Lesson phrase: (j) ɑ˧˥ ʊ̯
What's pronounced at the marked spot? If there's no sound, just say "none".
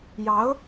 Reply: j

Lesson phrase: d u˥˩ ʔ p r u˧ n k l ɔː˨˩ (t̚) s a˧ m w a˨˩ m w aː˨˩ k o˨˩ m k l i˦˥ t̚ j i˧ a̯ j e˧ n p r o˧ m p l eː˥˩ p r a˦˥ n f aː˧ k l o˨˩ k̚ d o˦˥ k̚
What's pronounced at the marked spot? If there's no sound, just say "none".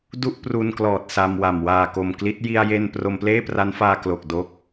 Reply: t̚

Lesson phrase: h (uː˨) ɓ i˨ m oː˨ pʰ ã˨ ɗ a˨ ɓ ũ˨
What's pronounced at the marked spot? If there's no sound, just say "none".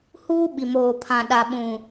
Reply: uː˦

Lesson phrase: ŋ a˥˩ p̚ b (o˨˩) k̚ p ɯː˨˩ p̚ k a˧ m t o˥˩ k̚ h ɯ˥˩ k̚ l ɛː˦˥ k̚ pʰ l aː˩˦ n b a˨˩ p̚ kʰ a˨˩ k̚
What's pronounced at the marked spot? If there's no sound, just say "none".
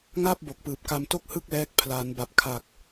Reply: o˨˩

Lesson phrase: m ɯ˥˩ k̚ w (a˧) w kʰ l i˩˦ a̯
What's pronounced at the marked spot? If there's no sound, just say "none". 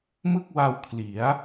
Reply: a˧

